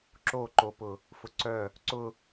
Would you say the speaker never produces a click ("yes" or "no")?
no